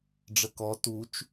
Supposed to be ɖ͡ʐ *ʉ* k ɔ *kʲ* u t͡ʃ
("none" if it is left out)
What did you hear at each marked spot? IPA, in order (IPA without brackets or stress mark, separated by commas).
ə, t